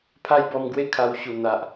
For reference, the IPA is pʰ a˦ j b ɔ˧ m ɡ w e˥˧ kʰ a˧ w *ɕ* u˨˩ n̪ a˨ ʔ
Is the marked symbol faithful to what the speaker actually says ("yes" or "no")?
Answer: yes